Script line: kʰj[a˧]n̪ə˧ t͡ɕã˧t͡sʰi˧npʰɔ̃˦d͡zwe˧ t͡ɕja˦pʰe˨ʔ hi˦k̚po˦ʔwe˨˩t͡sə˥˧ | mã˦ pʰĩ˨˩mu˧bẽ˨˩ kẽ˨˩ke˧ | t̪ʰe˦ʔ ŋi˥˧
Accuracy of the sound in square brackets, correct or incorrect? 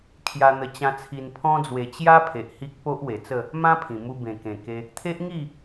correct